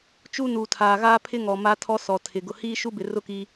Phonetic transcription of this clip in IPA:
t͡ʃ u˦ n u˨ tʰ aː˨ ɣ aː˦ pʰ ɪ˦ ŋ ɔ˨ m a˦ tʰ ɔ˦ s ɔ˨ tʰ ɪ˨ ɡ ʊ˨ h iː˦ ʃ u˦ b ɪ˨ r ʊ˦ k i˦

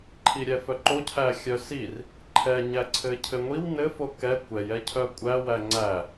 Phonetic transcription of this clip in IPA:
ǃʰ i ɾʲ ɛ f œ ǃ o cʰ æ xʲ œ s i r | ǃʰ ɛ ɲ æ ǀʰ ɘ cʰ ɘ ŋʷ i w n ɘ f o k ɛ kʷ ɛ j ɛ cʰ œ kʷʼ æ w æ ŋ͡ǀ æ

